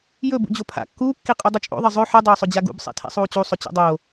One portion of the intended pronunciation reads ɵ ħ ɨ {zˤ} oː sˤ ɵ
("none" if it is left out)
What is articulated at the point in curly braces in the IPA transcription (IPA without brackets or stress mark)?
dˤ